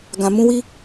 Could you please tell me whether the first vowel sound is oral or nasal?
nasal